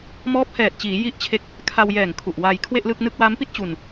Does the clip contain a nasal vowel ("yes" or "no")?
no